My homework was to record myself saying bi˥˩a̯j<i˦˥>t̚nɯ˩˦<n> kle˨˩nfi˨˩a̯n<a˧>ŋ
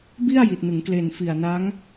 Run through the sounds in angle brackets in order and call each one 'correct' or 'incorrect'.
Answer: incorrect, incorrect, incorrect

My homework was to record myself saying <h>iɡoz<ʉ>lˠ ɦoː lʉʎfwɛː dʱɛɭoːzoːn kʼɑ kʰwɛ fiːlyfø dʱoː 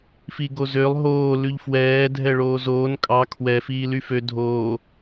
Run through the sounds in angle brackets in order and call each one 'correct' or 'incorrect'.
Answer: incorrect, incorrect

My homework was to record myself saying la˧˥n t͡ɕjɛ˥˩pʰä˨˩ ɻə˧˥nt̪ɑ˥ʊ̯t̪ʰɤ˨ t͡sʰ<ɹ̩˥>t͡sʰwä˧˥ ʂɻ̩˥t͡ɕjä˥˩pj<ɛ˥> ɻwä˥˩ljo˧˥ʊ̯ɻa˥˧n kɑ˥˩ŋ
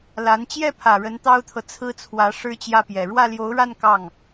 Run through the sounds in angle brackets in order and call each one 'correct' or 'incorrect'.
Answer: correct, incorrect

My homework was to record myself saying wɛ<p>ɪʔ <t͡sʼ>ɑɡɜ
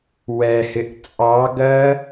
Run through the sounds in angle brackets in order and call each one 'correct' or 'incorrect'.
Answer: incorrect, correct

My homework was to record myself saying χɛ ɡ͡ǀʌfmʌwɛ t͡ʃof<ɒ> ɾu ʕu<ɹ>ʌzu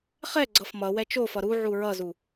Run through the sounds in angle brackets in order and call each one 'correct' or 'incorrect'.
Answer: incorrect, correct

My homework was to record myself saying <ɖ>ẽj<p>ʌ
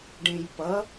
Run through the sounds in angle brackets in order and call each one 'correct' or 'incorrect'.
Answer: correct, correct

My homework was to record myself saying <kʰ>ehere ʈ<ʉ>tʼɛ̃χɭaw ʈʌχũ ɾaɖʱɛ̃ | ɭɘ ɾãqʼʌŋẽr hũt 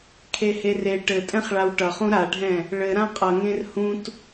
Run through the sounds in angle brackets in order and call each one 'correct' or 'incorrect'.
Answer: correct, incorrect

